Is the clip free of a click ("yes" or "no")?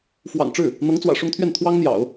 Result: yes